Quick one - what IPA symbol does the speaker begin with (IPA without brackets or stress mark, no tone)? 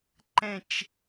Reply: ǃ